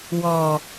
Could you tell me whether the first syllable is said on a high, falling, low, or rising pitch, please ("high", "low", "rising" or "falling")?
low